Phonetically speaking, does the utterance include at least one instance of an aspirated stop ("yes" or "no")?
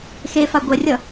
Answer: no